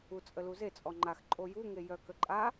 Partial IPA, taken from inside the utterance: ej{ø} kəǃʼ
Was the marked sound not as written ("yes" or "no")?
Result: yes